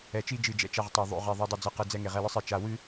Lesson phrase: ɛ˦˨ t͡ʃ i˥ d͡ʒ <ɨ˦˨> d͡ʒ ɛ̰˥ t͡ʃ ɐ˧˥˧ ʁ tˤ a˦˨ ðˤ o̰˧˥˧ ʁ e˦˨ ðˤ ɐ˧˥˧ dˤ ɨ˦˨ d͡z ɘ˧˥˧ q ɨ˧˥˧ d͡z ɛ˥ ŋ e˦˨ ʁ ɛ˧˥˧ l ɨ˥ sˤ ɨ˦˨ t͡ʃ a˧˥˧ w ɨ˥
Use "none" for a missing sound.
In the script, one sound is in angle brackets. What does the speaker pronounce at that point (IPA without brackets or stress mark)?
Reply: ɨ˦˨